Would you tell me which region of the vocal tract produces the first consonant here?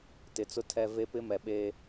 tongue tip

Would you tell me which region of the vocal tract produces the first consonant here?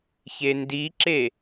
palate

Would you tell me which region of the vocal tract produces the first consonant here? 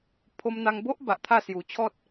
lips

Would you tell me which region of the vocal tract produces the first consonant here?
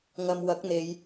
velum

